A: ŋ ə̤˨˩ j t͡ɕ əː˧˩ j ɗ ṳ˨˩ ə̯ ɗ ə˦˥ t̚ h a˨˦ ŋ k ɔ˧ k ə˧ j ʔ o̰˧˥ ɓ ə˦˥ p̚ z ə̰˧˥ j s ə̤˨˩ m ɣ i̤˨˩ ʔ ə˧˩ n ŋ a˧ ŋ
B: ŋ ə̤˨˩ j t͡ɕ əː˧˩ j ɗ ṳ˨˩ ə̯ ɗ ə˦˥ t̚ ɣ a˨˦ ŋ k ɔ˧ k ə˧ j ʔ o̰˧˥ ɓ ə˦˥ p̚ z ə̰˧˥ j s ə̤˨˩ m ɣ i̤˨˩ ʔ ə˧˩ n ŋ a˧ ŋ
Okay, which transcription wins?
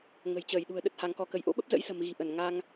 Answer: A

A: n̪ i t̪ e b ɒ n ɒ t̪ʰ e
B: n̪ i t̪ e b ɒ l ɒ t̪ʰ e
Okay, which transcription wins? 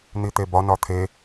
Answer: A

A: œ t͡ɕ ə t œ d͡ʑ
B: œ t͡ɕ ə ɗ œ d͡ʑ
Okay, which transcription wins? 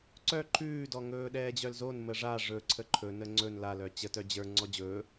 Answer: A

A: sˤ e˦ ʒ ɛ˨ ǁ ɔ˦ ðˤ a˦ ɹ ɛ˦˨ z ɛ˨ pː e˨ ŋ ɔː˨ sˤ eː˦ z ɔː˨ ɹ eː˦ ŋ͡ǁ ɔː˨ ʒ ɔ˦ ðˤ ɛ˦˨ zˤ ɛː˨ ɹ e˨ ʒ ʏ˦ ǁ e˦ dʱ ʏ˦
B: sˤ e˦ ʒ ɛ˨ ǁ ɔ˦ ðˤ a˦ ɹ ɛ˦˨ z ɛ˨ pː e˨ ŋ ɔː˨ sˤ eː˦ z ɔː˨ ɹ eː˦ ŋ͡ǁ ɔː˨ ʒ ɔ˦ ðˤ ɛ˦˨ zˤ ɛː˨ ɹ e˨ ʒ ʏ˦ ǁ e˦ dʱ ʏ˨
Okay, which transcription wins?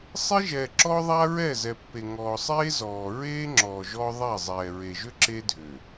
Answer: B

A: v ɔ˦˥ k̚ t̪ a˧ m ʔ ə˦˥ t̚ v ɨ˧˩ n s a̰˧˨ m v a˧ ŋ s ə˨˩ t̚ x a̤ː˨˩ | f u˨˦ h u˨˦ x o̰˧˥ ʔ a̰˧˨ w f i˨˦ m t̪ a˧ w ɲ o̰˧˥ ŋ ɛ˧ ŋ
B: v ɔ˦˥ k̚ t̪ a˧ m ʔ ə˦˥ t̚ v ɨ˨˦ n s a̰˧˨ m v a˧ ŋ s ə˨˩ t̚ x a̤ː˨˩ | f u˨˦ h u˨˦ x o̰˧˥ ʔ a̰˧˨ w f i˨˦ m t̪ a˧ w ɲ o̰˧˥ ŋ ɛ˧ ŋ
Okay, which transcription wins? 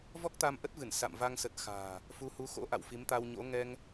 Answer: A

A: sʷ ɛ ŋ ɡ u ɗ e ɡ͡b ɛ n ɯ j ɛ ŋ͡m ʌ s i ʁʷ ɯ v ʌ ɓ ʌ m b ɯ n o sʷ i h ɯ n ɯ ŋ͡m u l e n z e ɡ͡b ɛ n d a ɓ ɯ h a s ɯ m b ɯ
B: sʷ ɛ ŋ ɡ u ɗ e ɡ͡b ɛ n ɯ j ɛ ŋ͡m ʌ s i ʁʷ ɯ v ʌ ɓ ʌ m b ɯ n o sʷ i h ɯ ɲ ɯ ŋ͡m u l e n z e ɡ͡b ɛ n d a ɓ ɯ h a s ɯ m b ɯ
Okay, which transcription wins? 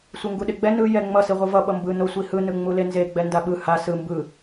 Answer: A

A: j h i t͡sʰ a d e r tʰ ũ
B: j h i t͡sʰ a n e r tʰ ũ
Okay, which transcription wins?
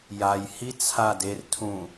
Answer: A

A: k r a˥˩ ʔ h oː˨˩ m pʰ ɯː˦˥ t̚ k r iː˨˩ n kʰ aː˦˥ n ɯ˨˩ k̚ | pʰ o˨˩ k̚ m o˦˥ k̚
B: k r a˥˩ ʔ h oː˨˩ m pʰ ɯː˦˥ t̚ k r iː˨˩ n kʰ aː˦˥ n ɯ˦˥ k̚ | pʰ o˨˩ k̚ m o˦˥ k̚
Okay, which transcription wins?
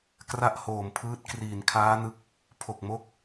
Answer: B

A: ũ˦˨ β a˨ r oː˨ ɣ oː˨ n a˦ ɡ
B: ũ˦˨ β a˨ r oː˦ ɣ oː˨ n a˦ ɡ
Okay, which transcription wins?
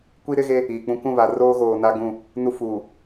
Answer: B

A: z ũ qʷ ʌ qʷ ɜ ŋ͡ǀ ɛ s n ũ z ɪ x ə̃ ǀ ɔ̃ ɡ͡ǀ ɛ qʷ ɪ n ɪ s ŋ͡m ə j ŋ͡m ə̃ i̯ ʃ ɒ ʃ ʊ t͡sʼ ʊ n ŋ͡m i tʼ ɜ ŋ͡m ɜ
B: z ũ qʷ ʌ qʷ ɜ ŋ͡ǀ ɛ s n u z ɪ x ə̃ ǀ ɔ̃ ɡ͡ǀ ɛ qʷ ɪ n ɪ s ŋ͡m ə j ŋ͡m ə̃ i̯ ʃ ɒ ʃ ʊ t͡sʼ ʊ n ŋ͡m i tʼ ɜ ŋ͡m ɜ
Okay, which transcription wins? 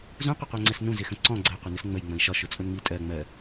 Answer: A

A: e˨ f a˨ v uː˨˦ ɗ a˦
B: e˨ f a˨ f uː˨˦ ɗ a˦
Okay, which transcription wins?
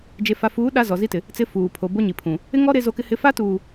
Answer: B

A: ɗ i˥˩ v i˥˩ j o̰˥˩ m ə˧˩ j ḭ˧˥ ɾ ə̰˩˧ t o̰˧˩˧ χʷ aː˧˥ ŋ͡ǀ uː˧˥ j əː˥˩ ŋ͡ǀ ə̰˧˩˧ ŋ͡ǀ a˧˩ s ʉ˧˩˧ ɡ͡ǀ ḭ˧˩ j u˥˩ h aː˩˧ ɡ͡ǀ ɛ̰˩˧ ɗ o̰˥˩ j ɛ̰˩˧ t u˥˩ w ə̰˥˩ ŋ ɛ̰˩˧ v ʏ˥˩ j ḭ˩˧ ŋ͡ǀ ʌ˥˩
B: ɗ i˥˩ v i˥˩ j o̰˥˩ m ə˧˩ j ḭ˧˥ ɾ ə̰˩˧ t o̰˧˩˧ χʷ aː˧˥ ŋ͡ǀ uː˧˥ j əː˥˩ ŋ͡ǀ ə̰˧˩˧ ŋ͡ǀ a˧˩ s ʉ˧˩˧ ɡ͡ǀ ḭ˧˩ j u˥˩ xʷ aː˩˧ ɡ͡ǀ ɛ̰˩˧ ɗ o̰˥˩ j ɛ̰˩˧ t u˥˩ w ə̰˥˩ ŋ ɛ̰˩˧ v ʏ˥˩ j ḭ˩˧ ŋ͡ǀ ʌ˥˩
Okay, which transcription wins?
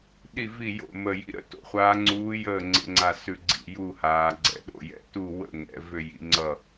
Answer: A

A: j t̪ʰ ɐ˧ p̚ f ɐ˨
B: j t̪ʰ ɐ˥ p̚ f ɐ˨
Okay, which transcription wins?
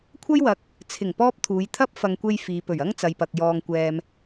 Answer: B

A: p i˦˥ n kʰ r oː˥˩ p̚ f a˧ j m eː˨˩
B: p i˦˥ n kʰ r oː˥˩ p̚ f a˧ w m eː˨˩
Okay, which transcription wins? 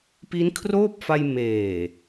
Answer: A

